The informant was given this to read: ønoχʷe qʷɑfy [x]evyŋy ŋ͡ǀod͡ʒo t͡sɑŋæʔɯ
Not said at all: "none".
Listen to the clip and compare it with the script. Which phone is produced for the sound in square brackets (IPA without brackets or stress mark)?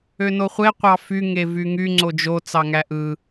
ŋ